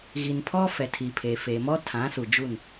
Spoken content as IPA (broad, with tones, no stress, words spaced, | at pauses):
ɣi˨npʰɔ˦ fɛ˨tʰi˨ pʰeː˨feː˨mɔ˦ tʰã˨˦ su˨d͡ʒu˦˨n